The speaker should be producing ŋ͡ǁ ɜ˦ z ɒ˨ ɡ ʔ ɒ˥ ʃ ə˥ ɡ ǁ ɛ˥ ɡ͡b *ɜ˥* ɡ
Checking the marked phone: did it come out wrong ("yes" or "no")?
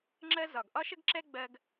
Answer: yes